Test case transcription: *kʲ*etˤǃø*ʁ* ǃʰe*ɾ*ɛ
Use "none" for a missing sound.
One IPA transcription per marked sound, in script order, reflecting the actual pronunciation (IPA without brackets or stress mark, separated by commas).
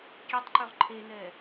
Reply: kʲ, ʁ, n